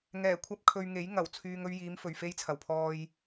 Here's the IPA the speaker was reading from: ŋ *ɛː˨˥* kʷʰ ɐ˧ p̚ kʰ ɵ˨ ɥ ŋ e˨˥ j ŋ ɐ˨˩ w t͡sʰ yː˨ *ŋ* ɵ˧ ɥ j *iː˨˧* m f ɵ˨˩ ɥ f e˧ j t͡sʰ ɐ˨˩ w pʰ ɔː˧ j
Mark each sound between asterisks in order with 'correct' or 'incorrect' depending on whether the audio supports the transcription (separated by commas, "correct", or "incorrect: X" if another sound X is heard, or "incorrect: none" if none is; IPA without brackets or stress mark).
incorrect: ɛː˨˩, correct, correct